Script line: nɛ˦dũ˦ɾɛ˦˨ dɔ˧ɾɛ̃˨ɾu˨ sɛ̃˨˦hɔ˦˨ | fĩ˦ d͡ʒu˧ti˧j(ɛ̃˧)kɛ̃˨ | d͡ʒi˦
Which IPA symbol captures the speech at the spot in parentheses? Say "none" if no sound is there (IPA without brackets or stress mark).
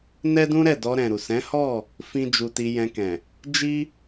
ɛ̃˧